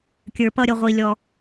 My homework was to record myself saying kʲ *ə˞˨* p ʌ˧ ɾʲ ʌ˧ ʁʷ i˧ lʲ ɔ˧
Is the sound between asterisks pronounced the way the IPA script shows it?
yes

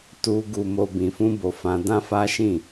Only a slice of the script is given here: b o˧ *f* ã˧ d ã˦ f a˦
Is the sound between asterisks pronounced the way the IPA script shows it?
yes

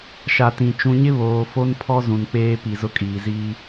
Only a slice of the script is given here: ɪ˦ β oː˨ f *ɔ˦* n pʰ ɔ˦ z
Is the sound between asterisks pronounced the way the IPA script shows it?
no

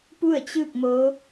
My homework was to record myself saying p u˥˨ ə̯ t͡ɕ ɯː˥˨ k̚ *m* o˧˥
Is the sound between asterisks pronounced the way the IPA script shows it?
yes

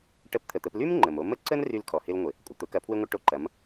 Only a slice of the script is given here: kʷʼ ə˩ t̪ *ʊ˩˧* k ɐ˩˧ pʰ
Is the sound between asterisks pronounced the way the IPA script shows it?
yes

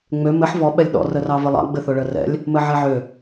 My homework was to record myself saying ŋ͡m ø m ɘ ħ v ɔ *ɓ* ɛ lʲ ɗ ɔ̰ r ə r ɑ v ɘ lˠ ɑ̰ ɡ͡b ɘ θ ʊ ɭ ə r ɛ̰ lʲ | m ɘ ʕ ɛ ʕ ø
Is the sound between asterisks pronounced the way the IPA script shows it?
yes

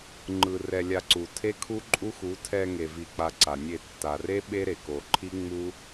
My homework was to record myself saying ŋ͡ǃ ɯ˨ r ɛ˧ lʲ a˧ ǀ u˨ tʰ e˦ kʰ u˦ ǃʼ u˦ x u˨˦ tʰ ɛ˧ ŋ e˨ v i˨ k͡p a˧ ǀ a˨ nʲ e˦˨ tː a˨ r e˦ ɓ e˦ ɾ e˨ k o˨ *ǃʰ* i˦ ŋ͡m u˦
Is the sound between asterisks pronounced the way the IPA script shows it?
yes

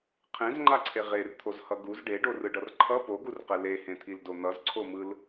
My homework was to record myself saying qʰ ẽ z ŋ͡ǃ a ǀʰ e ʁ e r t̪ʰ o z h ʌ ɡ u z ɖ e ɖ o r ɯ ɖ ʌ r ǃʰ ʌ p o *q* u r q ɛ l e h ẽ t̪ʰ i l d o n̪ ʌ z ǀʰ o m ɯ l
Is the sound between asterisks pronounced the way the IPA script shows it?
no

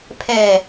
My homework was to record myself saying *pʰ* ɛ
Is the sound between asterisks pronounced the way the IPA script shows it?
yes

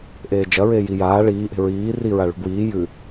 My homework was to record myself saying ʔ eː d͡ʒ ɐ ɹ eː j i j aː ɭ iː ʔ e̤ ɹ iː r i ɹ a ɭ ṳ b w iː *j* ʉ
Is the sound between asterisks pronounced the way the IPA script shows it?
yes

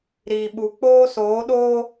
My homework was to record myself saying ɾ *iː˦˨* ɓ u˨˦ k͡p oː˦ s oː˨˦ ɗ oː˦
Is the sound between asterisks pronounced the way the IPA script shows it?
no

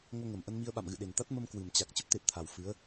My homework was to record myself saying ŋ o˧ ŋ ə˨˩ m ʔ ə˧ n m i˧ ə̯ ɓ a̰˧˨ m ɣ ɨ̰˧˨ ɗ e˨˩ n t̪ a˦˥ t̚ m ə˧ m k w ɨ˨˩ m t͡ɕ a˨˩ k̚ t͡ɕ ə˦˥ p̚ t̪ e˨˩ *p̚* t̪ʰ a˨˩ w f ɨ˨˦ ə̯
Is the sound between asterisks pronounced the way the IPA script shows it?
yes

